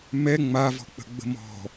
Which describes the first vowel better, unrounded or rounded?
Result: unrounded